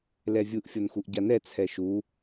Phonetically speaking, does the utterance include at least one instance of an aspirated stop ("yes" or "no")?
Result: yes